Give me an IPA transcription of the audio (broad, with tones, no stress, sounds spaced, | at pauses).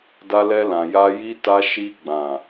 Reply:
d a˧ l ɛ˧ l ã˨ j a˧ j i˧ t a˧ ʃ i˧ ɡ͡b ã˨